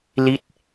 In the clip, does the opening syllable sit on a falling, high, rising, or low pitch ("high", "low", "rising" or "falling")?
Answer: rising